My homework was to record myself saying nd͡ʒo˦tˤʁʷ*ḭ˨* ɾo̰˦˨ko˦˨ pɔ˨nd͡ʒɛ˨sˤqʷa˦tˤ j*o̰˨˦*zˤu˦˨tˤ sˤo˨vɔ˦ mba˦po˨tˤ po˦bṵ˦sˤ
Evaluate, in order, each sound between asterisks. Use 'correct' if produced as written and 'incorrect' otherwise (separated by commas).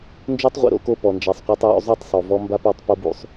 correct, incorrect